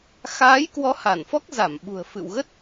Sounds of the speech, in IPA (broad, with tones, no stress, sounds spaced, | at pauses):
x aː˨˦ j k w ɔ˨˦ h a˧˩ n f ɔ˦˥ k̚ z a˧˩ m ɓ ṳ˨˩ ə̯ f ɨ̰˧˨ w ɣ ə˦˥ t̚